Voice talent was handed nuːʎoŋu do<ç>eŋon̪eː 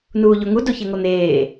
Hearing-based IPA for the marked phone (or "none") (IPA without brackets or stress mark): ç